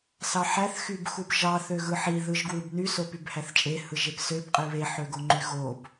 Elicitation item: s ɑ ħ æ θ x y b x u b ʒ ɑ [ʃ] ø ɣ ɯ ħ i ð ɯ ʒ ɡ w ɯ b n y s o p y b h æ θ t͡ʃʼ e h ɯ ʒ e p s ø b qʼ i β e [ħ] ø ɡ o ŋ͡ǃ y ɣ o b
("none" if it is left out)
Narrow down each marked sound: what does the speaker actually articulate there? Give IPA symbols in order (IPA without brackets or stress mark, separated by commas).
θ, ħ